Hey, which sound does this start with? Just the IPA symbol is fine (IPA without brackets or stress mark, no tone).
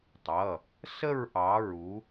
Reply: tˤ